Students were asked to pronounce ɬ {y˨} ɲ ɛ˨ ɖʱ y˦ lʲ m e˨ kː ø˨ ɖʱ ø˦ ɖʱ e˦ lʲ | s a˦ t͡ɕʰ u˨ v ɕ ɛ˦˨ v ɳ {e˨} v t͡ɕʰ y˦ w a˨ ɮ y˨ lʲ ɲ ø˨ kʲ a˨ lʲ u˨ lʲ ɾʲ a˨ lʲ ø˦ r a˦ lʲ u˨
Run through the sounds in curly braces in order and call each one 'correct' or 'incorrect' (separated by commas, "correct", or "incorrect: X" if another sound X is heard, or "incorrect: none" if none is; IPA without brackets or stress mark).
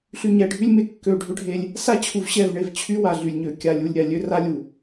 correct, correct